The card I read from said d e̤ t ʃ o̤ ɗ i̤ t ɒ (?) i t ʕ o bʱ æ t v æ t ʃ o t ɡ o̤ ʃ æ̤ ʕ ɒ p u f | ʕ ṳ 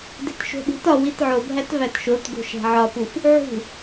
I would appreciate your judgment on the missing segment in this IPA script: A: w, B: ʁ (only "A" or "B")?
A